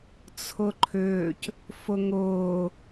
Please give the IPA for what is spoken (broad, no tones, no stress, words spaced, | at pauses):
t͡sʰʊǃʰʏːc | fʊŋʊː